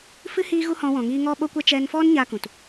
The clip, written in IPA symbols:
fɨ˧ hiː˦ɣu˦hɔ̃˧ wɔ̃˨ŋiː˧ ŋɔ˦ɓo˦kʷɛ˦ t͡ʃɛ˧nfɔ˦n ɲa˦kũ˨t

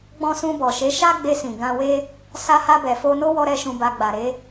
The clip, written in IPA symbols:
ɡ͡bɔ̃˧sũ˧bɔ˨ʃe˨˦ ʃa˦ɡ͡be˧sĩ˨ ɡã˧we˦ | sa˧ha˧bɛ˨fo˧ no˦wɔ˧ ɾɛ˦ʃũ˧ba˧ ɡ͡ba˨ɾe˨˦

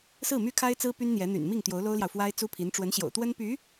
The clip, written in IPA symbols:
sɹ̩˥˩my˥kʰa˥ɪ̯t͡sɹ̩˥ py˥nn̪jɛ˧˥ n̪y̰˨˩nmi˥˩ŋ t̪jo˧˥ʊ̯lo˥ʊ̯ljɑ˨ʊ̯fwa˥ɪ̯ t͡su˥pʰi˧˥n ʈ͡ʂwə˧˥nɕjo̰˨˩ʊ̯t̪wə˥npy˧˥

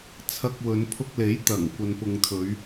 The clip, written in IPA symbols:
t͡sʰɐ˧k̚wɵ˨˧n pʰʊ˧k̚le˨˥jt̪ɐ˨˩ŋ kʷɐ˨npʊ˨ŋt̪ʰɵ˨˧ɥ

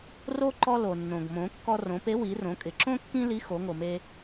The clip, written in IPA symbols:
ro˥ ǃɔ˧lo˩nːõ˩ɡ mõ˩˧kːɔ˧ rõ˩˧pe˧˥ wi˩˧rõ˩˧kʼɪ˩ǁõ˥ kːĩ˥li˧˥ xo˩˧ŋo˩me˧

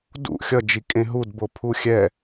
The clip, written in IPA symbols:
dṵ xʲʌ d͡ʒikʼẽɦud bopʰuxʲɛ

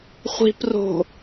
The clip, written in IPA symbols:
χʷi̤pro̤

